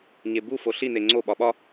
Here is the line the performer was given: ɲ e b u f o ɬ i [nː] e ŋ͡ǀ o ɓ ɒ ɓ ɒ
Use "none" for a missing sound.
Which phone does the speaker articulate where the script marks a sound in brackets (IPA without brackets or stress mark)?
n